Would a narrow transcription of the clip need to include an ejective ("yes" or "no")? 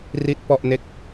no